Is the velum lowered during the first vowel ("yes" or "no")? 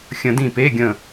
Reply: yes